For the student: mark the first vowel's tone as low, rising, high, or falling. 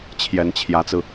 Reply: rising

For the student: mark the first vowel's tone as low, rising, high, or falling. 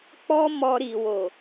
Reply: high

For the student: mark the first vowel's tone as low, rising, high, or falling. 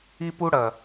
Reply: high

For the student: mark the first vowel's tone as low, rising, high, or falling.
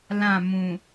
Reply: falling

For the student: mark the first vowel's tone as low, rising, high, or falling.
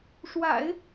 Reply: low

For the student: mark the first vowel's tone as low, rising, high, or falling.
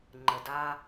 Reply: low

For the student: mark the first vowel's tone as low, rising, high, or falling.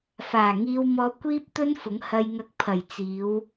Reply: low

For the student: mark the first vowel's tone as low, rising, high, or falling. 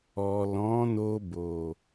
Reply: low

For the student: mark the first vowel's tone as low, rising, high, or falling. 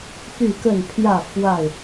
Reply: falling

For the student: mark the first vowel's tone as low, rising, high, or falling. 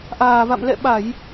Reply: low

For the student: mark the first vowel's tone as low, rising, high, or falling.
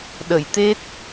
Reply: low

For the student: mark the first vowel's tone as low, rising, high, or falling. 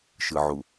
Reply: low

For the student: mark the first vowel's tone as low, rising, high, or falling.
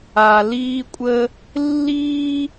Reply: low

